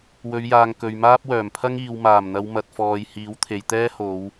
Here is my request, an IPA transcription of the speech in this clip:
w ɵ˨˧ ɥ j aː˨ ŋ k ɵ˨ ɥ m aː˥ p̚ w œː˨˩ m pʰ ɐ˥ ŋ iː˨ w m aː˨˩ m n̪ ɐ˨˧ w m ɐ˨ t̚ f ɔː˨ j h iː˨˥ w t̪ʰ e˨ j t̪ ɛː˥ h o˨˧ w

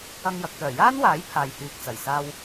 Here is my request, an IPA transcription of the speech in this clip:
ɐ˧ ŋ j ɐ˨ k̚ t̪ œː˨˩ j aː˥ n w aː˨˥ j pʰ aː˨ j h yː˨ k̚ t͡s ɐ˨˩ j s aː˧ w

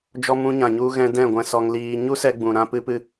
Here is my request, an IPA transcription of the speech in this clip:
d͡ʒ ɔ˧ m ũ˧ ɲ ã˨ ɲ u˧ ɣ ɛ̃˧ d ɛ̃˦˨ ɡʷ ɛ̃˧ s ɔ˧ ŋ l iː˧ ɲ u˦ s ɛ˧ ɡ͡b ũ˨ ɾ ã˧ p ɨ˧ p ɨ˧

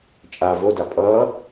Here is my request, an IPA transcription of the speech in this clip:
t͡ʃʼ a v o d a pʼ ʌː

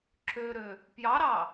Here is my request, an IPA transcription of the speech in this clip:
ǁ ø ɾ ø | p j ɑ ɾ ɑ

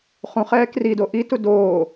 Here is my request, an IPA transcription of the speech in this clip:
χ ũ χ ɛː k r i d o ʔ i t u d oː

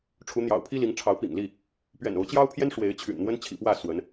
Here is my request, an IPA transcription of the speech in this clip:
ʈ͡ʂʰ u˨˦ n̪ j ɑ̰˨˩ ʊ̯ pʰ i˦ l i˨˦ ŋ ʈ͡ʂʰ ɑ˨˦ ʊ̯ p ḭ˨˩ ŋ l i˥˨ | p ɥ ɛ̰˨˩ n o˨˦ ʊ̯ t͡ɕ j ɑ˦ ʊ̯ pʰ j ɛ˦ n ʂ w e˨˦ ɪ̯ t͡ɕʰ y̰˨˩ n n̪ w ə˦ n t͡ɕʰ ḭ˨˩ p w ä˥˨ s w ə˨˦ n

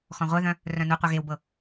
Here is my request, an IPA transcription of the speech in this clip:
x ɔ̃ ʁʷ œ ð œ̃ | r œ̃ n u qʷ œ ɣ e w b ɤ

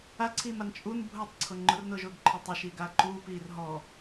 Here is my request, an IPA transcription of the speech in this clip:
a ǀʰ iː m a n t͡ʃʼ u n bʱ ʊː tˤ ǀʰ ʊ ŋ͡ǃ ʊ r n ʊː ʒ ʊː ɡ ǃʰ ɔ tˤ e ʃ iː ɡ aː ǃ uː p iː r ɦ ɔ

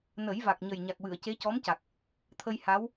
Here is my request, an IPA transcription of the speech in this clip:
n ə˨˩˦ j v a˨˩ k̚ ɲ ə˨˩ j ɲ a˨˩ k̚ w ɨ˨˩˨ ə̯ c e˧˥ c ɔ˧˥ m c a˨˩ k̚ | t̪ʰ ə˧ j h a˧˥ w

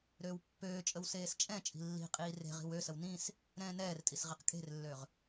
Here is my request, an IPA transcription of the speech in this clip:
ɾ øː w pː øː t͡ʃʼ ə w s eː s t͡ʃʼ ɛ̃ t͡ʃʼ i̤ lː i̤ qʼ iː r e̤ ʁ i̤ w ø s ə w n ĩ s | ɾ ɛ̃ː n ɛː r tʼ i s ʁ i q kʼ e̤ r lː ø ʁ

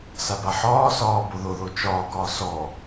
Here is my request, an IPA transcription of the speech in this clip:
s a b a ħ ɒː s ɒː b o ð o ð o t͡ʃ ɒː ɡ ɒː s ɔ

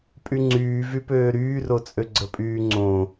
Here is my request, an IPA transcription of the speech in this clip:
pʼ y ŋ͡ǀ yː v y p øː ɾ yː r o t͡sʼ ø ɡ͡ǀ ə pʼ yː ŋ͡ǀ õ

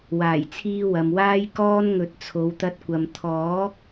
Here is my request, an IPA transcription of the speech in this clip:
w aː˨˩ j t͡sʰ iː˧ w ɐ˨ m w aː˥ j k ɔː˥ n ŋ ɵ˨˥ t̚ t͡sʰ o˨˧ w t̪ ɐ˧ t̚ kʷ ɐ˨ m t̪ʰ ɔː˨˥ k̚

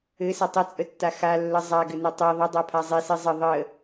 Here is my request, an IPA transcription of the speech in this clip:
ɘ s ɘ tˤ ɘ t͡sʼ ə tː a x a lː ə zˤ a ɡ ɘ n ɘ tˤ i ðˤ ə dˤ a pʰ a zˤ i s i zˤ ə ðˤ ə

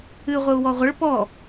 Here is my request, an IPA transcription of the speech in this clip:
ɨ ʁʷ ɘ u̯ w ɔ ʁʷ ɘ ɭ p ɔ

